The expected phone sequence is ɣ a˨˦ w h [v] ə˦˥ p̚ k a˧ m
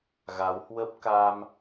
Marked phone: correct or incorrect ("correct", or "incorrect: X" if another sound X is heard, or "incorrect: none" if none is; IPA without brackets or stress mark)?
incorrect: w